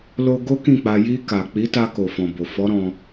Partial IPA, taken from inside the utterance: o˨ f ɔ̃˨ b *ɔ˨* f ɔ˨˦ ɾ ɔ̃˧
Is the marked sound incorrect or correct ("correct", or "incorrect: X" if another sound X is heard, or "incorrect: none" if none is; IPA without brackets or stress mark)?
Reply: incorrect: o˨